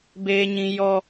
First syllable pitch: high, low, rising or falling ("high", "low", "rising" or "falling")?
high